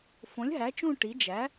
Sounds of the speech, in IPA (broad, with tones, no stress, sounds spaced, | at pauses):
f õ˩˥ lʲ ɦ æ˩˥ t͡ʃ ũ˦˨ ʈ i˩˥ d͡ʒ æ˩˥